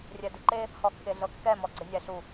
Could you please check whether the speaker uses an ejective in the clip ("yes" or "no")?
no